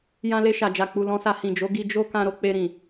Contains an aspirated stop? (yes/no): no